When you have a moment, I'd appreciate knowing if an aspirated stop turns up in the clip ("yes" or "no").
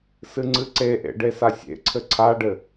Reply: yes